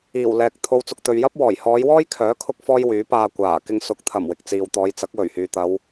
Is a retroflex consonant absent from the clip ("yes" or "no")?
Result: yes